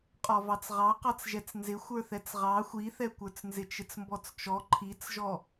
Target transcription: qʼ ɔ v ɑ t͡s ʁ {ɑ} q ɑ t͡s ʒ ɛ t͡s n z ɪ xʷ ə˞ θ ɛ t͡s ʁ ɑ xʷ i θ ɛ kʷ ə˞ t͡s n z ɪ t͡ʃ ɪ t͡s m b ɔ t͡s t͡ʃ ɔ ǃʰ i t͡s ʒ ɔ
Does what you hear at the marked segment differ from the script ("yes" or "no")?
no